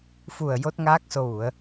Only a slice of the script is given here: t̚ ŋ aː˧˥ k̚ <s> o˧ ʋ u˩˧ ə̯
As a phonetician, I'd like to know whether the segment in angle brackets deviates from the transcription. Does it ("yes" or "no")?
no